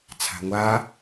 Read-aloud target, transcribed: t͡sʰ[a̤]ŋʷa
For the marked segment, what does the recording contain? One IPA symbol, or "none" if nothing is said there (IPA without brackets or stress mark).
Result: a̤